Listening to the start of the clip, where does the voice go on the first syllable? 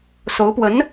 rising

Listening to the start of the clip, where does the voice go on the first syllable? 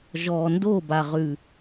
low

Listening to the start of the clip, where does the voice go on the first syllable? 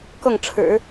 falling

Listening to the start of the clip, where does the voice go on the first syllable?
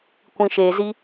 low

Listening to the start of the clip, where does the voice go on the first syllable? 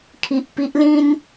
low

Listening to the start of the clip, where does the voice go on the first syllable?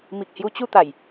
low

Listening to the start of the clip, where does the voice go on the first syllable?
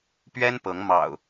high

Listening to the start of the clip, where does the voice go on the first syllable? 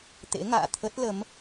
rising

